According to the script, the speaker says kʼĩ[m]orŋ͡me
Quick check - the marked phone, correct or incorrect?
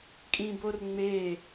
incorrect